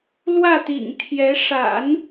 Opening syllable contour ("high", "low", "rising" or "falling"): falling